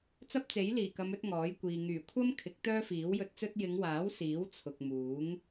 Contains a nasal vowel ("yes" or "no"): no